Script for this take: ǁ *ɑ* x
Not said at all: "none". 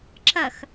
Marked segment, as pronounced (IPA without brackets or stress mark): ɐ